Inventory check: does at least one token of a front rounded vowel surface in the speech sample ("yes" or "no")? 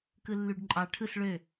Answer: yes